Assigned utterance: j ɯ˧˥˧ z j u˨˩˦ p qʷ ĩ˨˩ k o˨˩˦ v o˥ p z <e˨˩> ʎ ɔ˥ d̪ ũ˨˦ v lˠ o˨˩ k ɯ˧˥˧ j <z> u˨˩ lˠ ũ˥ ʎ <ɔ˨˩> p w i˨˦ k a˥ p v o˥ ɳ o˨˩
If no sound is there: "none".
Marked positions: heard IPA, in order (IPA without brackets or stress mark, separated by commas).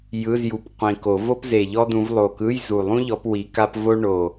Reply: e˨˩, z, ɔ˨˦